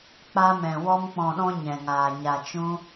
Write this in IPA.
k͡pa˦mɛ̃˧ wɔ˦mk͡pɔ̃˧ɗɔ̃˦ ɲɛ̃˧ŋaː˧ ɲa˧t͡ʃũ˦

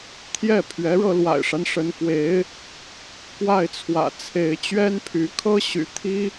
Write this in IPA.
t̪ʰjɛ˥˩pʰɥɛ˧˥ɻɤ˧ lwa̰˨˩ɪ̯ʂa˦n ʂə˧˥nkwe˧˥ɪ̯ | kwa˥˩ɪ̯t͡sʰwä̰˨˩t͡sʰe˧˥ɪ̯ t͡ɕɥɛ˥npʰy˧˥kʰɤ˥ ɕy̰˨˩t̪ʰi˥

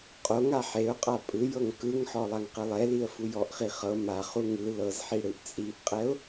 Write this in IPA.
qʼoŋa ħeʊ̯qʼa pʼɯjɤŋ kɯŋħɔ lˠaŋqɯlˠɛliə̯ fujɔʔχi χɤ maχu ŋɯ lɤzħi ɽɯʔt͡sʼiʔqʼɛʊ̯

